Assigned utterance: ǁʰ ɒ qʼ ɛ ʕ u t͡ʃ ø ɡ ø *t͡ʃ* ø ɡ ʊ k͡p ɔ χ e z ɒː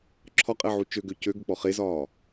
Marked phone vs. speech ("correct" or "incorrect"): incorrect